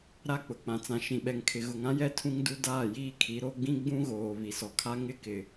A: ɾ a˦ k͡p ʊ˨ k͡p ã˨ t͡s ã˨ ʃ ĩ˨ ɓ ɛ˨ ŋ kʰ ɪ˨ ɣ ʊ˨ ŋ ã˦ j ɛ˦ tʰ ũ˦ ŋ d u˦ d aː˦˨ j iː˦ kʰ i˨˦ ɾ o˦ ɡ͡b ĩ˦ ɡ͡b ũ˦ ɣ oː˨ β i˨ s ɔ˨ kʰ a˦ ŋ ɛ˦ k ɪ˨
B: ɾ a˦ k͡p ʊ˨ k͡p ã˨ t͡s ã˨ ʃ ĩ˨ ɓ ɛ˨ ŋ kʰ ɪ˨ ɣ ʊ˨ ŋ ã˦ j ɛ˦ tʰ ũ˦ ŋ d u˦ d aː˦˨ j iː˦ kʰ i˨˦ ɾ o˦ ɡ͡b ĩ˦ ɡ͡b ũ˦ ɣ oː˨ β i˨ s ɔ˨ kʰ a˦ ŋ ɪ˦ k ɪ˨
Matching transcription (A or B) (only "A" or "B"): B